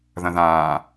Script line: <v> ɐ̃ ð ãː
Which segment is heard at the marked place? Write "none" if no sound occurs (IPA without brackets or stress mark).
ð